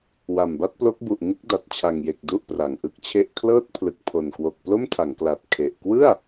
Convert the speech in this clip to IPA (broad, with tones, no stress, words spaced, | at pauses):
wa˨˩mba˥˩t̚plo˦˥k̚bu˨˩ʔ ŋɯ˥˩k̚da˨˩t̚t͡ɕʰa˨˩ŋje˨˩k̚ du˥˩ʔpra˨˩ŋʔɯ˥˩k̚t͡ɕʰe˥˩ʔ kʰlɤː˥˩t̚pʰlɯ˨˩k̚ pʰo˨˩n kwo˨˩k̚plo˥˩mtʰa˩˦ŋkla˨˩t̚ kʰe˨˩ʔ kwɯ˥˩a̯